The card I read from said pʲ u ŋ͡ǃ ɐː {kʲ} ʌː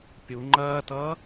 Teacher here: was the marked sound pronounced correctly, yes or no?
no